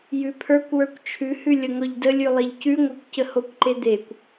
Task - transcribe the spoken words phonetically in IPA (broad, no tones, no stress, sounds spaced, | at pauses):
j ʉ pʰ ə˞ kʷ w ə˞ kʷ t͡ʃʰ ʉ h ʉ lʲ ə ŋ ɔ ʎ d ə lʲ ʉ lˠ e ʎ c ʉ ŋʷ ə˞ kʷ c ə h o kʷ ǃ e d̪ e kʷ